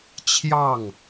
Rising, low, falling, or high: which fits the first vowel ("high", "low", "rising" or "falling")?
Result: falling